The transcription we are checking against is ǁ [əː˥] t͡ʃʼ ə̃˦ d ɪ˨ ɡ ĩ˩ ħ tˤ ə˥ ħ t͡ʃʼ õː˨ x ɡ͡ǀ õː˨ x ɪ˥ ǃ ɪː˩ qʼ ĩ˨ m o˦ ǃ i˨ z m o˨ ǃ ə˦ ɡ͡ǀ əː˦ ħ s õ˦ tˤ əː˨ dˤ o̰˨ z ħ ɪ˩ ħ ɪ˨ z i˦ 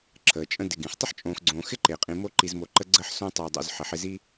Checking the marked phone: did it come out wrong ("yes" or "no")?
yes